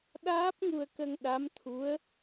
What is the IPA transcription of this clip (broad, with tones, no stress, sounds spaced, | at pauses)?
ɗ aː˦˥ p̚ ŋ u˧ ə̯ k ə˧ ŋ ɗ a˧˥ m t̪ʰ u˧˥ ə̯